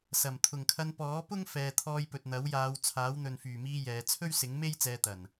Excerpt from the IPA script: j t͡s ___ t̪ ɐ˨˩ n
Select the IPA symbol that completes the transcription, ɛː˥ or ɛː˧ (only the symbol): ɛː˧